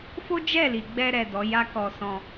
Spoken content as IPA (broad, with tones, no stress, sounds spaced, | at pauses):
f o˦ d͡ʒ ɛ˦˨ l i˨ ɡ͡b ɛ˧ ɾ ɛ˨ d ɔ˨˦ j a˦ k ɔ˧ s ɔ̃˧